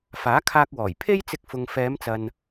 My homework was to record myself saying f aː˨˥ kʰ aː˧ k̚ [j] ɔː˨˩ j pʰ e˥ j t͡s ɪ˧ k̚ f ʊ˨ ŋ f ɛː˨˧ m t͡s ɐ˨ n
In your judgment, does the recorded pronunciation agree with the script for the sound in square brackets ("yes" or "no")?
no